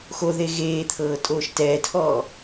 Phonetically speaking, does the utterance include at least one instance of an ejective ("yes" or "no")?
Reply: yes